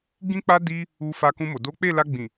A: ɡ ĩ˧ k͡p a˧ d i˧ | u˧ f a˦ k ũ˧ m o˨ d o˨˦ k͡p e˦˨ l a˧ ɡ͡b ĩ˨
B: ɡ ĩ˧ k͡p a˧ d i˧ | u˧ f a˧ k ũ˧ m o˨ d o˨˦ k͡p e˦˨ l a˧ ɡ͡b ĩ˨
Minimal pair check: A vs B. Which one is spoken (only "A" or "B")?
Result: B